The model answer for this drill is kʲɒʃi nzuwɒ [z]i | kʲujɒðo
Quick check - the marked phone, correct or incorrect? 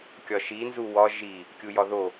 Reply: incorrect